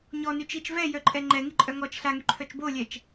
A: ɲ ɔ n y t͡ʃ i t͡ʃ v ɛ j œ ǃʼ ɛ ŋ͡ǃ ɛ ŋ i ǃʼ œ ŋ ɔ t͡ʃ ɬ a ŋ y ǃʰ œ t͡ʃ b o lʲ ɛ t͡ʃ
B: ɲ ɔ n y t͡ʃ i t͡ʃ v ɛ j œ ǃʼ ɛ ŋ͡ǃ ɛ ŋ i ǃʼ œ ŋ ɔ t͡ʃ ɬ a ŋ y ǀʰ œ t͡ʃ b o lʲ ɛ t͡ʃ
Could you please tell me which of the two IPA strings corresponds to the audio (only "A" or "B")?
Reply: A